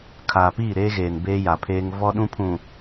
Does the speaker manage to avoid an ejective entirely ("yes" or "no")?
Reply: yes